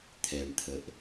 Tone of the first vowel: low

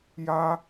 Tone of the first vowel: high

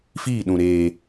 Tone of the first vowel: falling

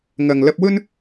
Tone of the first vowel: low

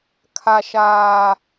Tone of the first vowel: low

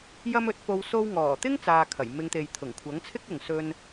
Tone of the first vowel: high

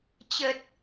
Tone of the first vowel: low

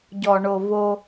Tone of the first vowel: low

